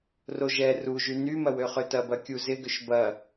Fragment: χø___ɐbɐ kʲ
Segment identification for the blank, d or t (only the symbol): t